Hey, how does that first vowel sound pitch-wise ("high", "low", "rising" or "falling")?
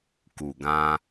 low